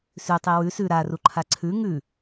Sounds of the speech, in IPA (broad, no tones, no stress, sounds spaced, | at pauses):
s ʉ tˤ i w ʉ s ʉ ɾ a r u ǃʰ a ǀʰ ʉ ŋ ʉ